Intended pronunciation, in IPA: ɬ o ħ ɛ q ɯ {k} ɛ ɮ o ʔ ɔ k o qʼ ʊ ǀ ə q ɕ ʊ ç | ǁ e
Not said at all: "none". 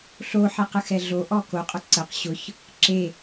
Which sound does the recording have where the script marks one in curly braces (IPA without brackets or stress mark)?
x